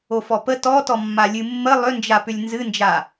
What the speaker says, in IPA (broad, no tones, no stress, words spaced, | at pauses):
ofɔpə tɔtɔmːa lʲɨmːə lˠʏnd͡ʒapʏlʲ nzɨnd͡ʒa